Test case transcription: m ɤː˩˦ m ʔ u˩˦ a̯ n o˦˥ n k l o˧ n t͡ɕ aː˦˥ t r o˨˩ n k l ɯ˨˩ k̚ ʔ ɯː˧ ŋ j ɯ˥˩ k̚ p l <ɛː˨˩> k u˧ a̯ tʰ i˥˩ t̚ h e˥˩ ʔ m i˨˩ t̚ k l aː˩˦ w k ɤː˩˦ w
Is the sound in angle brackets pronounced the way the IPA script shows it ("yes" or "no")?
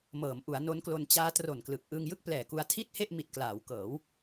yes